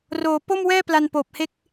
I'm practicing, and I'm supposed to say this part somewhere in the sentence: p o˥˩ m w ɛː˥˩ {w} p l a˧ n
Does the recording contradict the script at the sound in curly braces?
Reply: yes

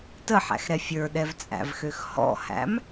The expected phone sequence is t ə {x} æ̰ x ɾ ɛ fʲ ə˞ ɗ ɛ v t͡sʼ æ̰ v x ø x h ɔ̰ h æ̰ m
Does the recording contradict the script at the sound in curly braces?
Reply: yes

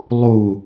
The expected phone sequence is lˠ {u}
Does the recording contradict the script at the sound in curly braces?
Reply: no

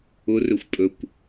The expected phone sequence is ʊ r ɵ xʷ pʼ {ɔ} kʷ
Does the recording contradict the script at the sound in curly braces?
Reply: yes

